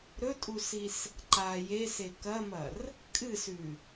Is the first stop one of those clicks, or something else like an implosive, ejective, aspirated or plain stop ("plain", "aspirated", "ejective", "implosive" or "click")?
ejective